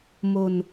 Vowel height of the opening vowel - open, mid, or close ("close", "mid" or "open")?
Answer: mid